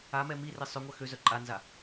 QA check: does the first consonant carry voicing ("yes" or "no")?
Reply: yes